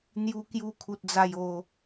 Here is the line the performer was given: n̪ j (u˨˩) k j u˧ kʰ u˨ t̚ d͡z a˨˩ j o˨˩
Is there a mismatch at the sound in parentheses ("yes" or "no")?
yes